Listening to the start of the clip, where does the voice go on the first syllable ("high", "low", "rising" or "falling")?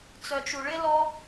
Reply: low